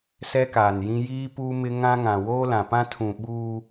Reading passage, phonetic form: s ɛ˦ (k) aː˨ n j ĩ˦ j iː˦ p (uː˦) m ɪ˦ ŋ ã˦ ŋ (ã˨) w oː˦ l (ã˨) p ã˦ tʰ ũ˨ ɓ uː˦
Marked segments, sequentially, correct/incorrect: correct, correct, correct, correct

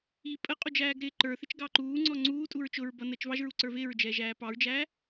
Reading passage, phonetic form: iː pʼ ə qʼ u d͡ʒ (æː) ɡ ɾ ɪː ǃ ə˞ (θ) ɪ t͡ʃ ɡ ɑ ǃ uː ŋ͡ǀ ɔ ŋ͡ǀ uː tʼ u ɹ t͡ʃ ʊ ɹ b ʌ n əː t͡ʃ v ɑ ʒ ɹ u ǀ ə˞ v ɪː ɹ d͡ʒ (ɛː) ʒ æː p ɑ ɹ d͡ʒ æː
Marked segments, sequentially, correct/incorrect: correct, correct, correct

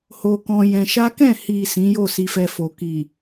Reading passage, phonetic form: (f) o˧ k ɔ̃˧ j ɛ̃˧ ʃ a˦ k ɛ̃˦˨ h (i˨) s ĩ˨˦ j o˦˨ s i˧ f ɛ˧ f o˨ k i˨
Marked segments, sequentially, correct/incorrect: incorrect: h, correct

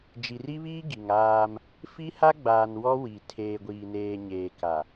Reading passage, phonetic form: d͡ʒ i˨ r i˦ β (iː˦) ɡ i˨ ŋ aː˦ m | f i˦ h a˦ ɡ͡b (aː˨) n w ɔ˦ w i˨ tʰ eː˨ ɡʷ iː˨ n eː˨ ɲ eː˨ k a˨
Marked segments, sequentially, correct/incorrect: correct, correct

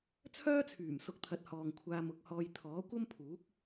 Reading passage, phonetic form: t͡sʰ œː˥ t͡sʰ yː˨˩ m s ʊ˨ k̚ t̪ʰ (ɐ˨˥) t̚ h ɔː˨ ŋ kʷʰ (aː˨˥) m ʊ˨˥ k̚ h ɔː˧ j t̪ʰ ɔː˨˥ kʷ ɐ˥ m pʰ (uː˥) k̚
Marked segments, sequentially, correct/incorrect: correct, incorrect: aː˧, incorrect: uː˨˥

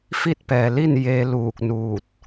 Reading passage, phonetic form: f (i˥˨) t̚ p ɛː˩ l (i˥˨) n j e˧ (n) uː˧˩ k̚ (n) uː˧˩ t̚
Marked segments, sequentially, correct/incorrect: correct, correct, incorrect: l, correct

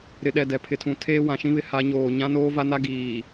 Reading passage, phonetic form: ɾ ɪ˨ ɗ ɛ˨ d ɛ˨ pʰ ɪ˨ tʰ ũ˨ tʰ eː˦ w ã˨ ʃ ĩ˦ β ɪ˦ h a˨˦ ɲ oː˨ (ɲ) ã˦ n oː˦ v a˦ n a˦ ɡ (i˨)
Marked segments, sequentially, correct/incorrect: correct, incorrect: iː˨

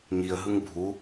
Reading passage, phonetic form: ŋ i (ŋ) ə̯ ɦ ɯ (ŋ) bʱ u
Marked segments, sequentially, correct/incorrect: incorrect: none, correct

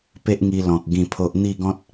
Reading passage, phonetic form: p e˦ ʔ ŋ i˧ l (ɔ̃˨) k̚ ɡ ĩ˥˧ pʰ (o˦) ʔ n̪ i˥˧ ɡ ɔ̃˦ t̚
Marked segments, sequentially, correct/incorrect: correct, correct

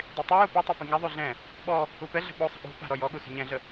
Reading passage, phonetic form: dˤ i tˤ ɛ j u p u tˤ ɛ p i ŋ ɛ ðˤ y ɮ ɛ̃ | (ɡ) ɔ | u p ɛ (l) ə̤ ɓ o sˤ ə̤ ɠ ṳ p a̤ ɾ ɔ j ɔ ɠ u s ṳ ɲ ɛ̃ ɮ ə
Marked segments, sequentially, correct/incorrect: incorrect: ɓ, incorrect: ɮ

